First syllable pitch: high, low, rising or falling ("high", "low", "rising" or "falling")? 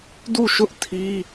falling